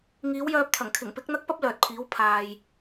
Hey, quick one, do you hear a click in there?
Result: no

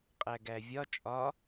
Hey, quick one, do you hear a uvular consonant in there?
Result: yes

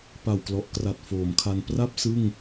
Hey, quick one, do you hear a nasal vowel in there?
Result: no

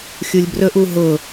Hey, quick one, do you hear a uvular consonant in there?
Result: no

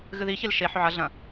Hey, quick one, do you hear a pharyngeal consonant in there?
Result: yes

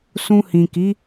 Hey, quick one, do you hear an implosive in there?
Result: no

